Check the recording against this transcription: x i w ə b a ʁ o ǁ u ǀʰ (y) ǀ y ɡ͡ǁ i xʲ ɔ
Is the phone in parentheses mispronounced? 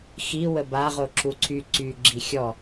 no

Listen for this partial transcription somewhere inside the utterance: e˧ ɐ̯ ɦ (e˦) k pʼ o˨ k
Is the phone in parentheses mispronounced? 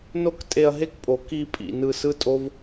no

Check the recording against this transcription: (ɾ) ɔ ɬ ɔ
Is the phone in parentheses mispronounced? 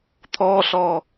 yes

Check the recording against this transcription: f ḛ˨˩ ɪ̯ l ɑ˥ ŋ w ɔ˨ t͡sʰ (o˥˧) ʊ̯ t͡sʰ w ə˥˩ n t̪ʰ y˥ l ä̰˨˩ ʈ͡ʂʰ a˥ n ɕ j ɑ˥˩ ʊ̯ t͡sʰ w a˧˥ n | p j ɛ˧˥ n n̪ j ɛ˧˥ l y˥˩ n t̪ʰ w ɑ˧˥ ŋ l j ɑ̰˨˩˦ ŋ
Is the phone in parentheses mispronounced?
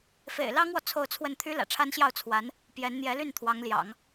no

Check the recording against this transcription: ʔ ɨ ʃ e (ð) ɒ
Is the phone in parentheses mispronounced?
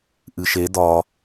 yes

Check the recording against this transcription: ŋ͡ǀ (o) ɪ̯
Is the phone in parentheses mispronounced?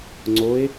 no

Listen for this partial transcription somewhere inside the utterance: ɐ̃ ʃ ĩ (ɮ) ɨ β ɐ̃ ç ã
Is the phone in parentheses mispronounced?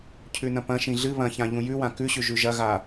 no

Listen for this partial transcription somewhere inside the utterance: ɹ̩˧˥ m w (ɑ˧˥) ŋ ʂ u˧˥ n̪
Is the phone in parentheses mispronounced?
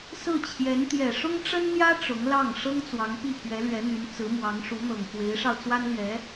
no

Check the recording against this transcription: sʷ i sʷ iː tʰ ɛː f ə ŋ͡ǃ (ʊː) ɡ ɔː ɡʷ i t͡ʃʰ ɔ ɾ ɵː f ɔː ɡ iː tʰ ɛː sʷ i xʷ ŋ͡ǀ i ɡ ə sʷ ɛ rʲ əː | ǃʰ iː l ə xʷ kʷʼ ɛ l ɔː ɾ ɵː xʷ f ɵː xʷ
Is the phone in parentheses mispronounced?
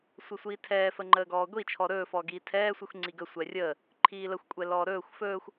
yes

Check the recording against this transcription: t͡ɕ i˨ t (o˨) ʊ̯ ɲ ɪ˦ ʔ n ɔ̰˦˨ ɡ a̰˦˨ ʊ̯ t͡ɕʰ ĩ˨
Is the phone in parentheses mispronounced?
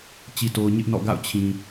no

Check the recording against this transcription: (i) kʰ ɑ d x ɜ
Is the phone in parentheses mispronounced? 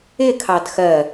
yes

